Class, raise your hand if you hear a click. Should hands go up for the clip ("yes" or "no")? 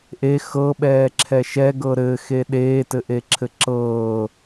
yes